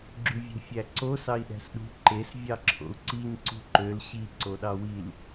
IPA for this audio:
ɡ͡ǁyvʲe̤fʲæǀo sɑi̯ɗæ̤sɗṳ ǃes vʲɑǁʰo̰u̯ǀiɲ ǀṳǃøl ɕi ǀoɗɑwil

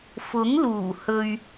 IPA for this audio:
fʊ˨˥ŋluː˨˩ hɵ˧ɥ

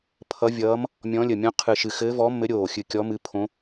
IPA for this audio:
pʰʌ˧˥vʲʌː˧˥m | mʲɔ̃˧˥lʲə˧˩mʲɔ̃˧˥ qʰɨ˧˩ʃɨ˧˩ xɘː˧˥vɔ˧˥mːɘ˧˥ ɾʲoː˧˩xʲɨ˧˩ kʲɔ˧˥ mɨ˧˥pʰõ˧˥

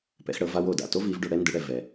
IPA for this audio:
pɛ̰˩˥xɽɤ˩˥v a˥w o˩da̰˩ to˥vi˩˥v ɖo˧ɽɛ˥ndɯ˩˥ɽɛ˩ vɛ˩

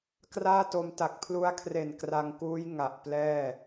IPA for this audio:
kraː˥˩to˧m ta˨˩k̚pʰlu˦˥a̯kʰre˨˩n kra˧ŋkuː˦˥j ŋa˨˩ʔplɛː˥˩

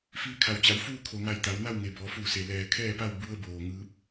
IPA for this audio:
fiː˧kʰa˩wt͡ɕa˩˧wfuː˥˨ kʰo˩ŋa˧˩j t̪a˩˧wna˥˨wŋe˩ bɔː˩˧fuː˧˩se˩ lɛː˩ kʰɛː˥˨pa˥˨w bu˧ə̯boː˩ ŋɯː˧˥p̚

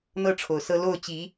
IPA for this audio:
n̪ɤ˥ ʈ͡ʂʰo˨˩ʊ̯sɤ˥ lo˥˩ʊ̯t͡ɕi˧˥

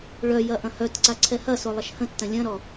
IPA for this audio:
ɭœjɐ ʔɐ̃hœtǀa ǀʰɛhɐso lˠɐʃhə̃tːɐ̃ lʲɐ̃ɾɔ

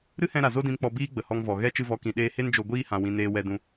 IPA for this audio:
ɾɨ˦hɛ̃˧ ɾa˨ zo˧dĩ˨mk͡pɔ˨ biː˦ɡ͡bə˨hɔ˧ŋ vɔ˨ɣɛ˦ t͡ʃɨ˧vɔ˨˦kĩ˨ ɗeː˧he˦nd͡ʒo˧ ɡʷiː˦hã˨wĩ˨ neː˧wɛ˧ dũ˧

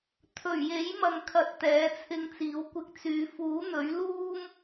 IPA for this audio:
t̪ʰɵ˨˩ɥje˨˥jmɐ˨ŋkʰɐ˨t̚ t̪ɛː˨˥t͡sʰɪ˧ŋt͡siː˨˥wkʷɪ˧k̚ t͡syː˨˧ fuː˨˥n̪ɵ˨˥ɥ luː˥m

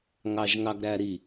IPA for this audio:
ŋɑʒŋɑɡɾæɾi

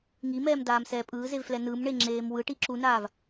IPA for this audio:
ŋimɛːmdaːmsɛː pʼɯːzevflɛ nɯmɳeŋ͡ǁeːm wɯʈi ǁunaːv

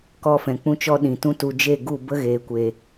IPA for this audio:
kɔ˧fɛ̃˨ k͡pũ˦t͡ʃɔ˦ ɗĩ˨tũ˦tu˧ d͡ʒe˦˨ɡu˦˨ bə˦ɣeː˨kʷe˨

